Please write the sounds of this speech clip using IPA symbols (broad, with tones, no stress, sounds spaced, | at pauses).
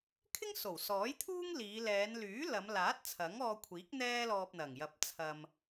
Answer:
kʰ ɪ˥ ŋ s o˨˩ w s ɔː˨˥ j t̪ʰ uː˥ ŋ l iː˨˧ l ɛː˨˧ n l yː˨˥ l ɐ˨˧ m l aː˨˥ t̚ t͡sʰ ɐ˨˥ ŋ ɔː˧ kʷʰ iː˨˥ k̚ n̪ ɛː˥ l ɔː˧ p̚ n̪ ɐ˨˩ ŋ j ɐ˨ p̚ t͡sʰ ɐ˧ m